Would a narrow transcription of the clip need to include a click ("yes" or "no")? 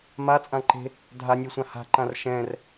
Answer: yes